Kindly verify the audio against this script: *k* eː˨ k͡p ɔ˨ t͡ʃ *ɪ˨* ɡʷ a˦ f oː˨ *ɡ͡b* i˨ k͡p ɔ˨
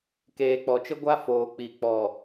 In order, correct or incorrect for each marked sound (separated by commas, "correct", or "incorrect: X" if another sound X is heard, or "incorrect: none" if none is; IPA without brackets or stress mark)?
correct, incorrect: ɪ˦, incorrect: k͡p